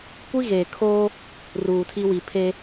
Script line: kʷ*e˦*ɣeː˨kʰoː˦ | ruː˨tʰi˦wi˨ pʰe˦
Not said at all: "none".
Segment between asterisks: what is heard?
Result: i˦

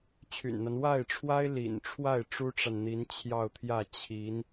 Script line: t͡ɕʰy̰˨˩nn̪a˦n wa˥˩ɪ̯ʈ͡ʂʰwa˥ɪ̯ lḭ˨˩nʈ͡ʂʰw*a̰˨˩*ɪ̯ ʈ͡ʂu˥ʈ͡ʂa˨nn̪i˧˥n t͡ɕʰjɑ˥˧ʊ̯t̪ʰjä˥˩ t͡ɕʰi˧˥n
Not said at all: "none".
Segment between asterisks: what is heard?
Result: a˥˩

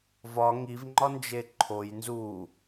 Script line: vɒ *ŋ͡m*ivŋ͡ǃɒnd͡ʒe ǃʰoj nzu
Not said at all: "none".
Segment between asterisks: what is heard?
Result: ŋ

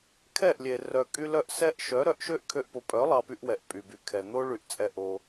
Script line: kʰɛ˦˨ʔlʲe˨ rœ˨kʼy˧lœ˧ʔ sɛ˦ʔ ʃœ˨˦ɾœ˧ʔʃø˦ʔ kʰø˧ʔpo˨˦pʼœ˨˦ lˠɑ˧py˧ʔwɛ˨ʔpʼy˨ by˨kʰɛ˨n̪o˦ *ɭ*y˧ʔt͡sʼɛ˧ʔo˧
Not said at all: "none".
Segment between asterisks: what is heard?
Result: ɭ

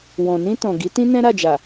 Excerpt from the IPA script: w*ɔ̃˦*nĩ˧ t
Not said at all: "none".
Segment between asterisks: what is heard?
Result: ɔ̃˨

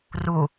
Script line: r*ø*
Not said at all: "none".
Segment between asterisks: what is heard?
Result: u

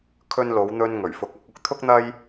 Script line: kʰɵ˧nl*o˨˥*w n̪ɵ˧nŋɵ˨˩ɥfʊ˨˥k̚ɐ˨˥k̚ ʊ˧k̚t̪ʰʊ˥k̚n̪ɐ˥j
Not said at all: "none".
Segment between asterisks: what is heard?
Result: o˨˧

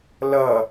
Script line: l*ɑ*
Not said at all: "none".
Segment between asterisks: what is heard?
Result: ʌ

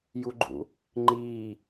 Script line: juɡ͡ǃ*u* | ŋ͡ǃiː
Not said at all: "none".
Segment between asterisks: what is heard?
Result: ṵ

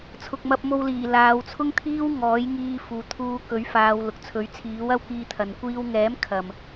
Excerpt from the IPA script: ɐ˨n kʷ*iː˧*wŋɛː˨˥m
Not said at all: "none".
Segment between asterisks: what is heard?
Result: iː˧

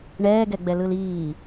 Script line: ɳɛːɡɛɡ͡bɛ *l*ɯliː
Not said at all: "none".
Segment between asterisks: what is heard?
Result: l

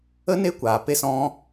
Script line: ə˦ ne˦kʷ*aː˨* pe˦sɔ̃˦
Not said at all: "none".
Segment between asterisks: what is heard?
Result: aː˨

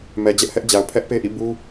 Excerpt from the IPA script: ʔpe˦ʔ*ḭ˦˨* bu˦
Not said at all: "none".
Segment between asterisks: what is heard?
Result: ḭ˦˨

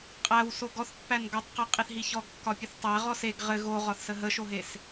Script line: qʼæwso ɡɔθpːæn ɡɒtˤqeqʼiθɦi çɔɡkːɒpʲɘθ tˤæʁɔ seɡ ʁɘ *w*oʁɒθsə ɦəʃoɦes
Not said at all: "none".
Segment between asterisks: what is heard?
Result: ɣ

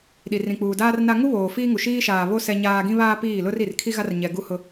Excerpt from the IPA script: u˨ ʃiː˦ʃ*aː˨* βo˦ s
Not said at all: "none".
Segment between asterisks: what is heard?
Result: aː˨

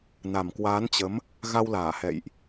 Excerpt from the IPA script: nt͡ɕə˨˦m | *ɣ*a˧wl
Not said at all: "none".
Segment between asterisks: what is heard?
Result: ɣ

